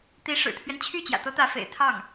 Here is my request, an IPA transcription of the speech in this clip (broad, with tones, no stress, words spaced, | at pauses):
t̪i˧˥ ʂɻ̩˨˩t̪ʰɥɛ˦n t͡ɕʰy˥˩ t͡ɕjä̰˨˩t̪ɤ˧˥t̪ä˧˥fḛ˨˩ɪ̯ t̪ʰɑ˥˩ŋ